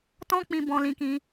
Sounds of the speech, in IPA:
t ɔ̃˦ k͡p ĩ˧ b ɔ̃˧ l ĩ˧ k ĩ˧

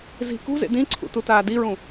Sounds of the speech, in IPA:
z i̤ k ṳ z ḛ d ĩ ǀʰ ṵ t u t aː d i ɹ ũ

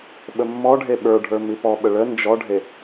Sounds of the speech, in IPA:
ɓ ə mː ɔ ɖʱ e ɓ ə˞ ɖʱ ə˞ m i p ɔ ɓ ə ɭ ə n d͡ʒ ɔ ɖʱ e

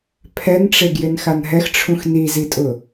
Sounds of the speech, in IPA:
pʰ ɛ n ʈ͡ʂ e ɡ j ɪ n x a n ɦ ɛ x ʈ͡ʂʰ ũ x n i z i tʼ ʊ

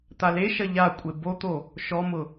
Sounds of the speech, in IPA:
t̪ a l e ʃ ɐ ʎ a kʷʼ e b o t̪ o | ʃ ɔ m ʊ

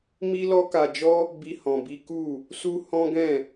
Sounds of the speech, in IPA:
m i˦ l ɔ˦ k a˧ d͡ʒ ɔ˦ | b i˦ h ɔ̃˧ b i˦ k u˦˨ | s u˦ h ɔ̃˦ ɡ ɛ̃˦˨

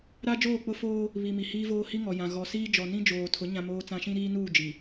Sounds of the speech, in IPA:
ɾ a˦ d͡ʒ oː˦˨ k͡p ʊ˦ f oː˦ | β i˨ m i˨ h iː˦ v oː˦ h i˦ ŋ ɔ˨ j ã˨ ɣ ɔ˨ s iː˦ d͡ʒ ɔ˨ n ĩ˦ d͡ʒ oː˨ tʰ ʊ˨˦ ɲ ã˦ m oː˦ t͡s ã˦ ʃ ĩ˦ ɾ iː˦ n uː˦˨ d͡ʒ i˨

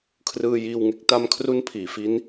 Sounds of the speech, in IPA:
kʰ r ɯː˧ j iː˧ w ŋ e˦˥ k̚ t a˧ m kʰ r u˦˥ n pʰ iː˩˦ f i˦˥ n

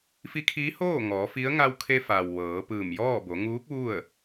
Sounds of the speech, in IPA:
f i˧˥ kʰ iː˧˥ h oː˥˨ ŋ ɔː˩˧ f i˧˥ ə̯ ŋ a˧ w kʰ e˧ f a˩ w ʋ ɤː˩˧ p ɯː˧˩ m j ɔː˥˨ b o˩˧ ŋ uː˧˥ k̚ ʋ u˥˨ ə̯

